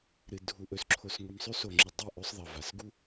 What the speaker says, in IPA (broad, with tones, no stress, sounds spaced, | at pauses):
ɾ ɨ˨ dʱ u˨ ʔ ɵ˨ s ǁʰ o˨ s ŋʷ i˨ m sˤ ʉ˦ s o˨ ŋ͡ǁ ɨ˨ dˤ i˦˨ ʔ ɵ˦ sˤ ðˤ ɐ˨ v a˨ s ɡ u˦